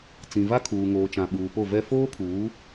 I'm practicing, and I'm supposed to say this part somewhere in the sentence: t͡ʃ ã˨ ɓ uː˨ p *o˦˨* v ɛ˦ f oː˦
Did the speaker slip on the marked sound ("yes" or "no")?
no